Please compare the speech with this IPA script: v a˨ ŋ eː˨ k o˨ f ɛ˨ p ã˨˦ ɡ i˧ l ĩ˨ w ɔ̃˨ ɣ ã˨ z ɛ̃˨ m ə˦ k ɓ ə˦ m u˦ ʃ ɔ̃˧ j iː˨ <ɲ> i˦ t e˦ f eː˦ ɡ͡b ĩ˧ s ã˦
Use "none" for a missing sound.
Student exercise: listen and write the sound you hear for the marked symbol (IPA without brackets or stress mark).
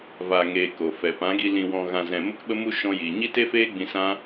ɲ